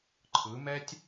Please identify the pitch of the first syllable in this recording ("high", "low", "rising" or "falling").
rising